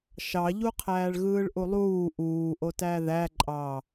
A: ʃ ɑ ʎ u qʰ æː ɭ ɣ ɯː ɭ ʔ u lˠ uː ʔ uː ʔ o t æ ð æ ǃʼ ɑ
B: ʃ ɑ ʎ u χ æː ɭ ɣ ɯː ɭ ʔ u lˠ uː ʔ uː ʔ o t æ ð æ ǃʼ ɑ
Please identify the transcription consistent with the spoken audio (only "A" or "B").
A